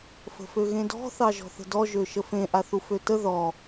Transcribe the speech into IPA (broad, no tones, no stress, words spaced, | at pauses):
fə̤føɣẽdɔ̤ θɑʒɔ̤θə̤dɔ ʒøʃəfẽ ʔaθuføtə ðɔ